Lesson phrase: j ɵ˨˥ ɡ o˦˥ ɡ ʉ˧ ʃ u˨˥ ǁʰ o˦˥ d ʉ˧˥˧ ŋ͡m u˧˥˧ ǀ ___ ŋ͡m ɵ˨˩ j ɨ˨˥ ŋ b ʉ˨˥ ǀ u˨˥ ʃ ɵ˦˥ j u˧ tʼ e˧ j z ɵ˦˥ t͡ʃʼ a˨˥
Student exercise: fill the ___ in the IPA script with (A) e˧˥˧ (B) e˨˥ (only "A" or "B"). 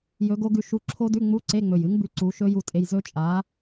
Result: A